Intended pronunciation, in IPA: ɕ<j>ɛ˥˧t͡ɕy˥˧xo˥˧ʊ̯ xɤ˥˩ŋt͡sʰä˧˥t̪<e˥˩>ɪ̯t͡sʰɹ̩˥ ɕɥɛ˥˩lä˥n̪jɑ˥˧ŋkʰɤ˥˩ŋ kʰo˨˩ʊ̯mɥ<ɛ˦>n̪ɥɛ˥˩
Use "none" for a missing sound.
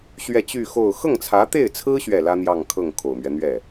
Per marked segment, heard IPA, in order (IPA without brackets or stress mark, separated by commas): ɥ, e˥˩, ɛ˦